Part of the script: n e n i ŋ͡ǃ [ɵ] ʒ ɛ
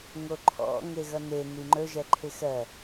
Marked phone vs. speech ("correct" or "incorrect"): correct